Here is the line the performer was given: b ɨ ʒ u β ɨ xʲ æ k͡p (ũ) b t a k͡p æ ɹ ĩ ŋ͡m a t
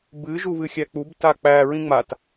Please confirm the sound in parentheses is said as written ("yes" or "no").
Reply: no